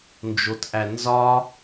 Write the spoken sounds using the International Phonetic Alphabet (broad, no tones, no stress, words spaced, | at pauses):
nd͡ʒotʔænzɒ